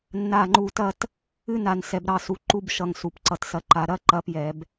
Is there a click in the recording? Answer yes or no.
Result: yes